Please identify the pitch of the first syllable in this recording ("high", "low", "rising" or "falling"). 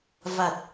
low